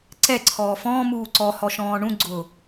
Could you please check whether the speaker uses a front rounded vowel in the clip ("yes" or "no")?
no